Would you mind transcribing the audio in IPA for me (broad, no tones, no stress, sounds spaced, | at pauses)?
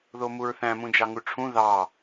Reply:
ð o m u ɹ θ æ̃ m ũ d͡ʒ ɑ ŋ u ʈ͡ʂʰ ũ ð ɑ